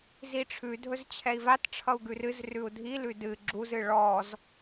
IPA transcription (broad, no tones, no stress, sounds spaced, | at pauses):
z i ʈ͡ʂʰ ʉ dʱ ɵ z t͡ɕʰ ɛ i̯ v a t ʈ͡ʂʰ ʌ u̯ ɡ ʉ r ɨ z r ʉ u̯ dʱ i l ʉ d ɨ ɡ͡ǁ u z ɨ ɭ ɔ z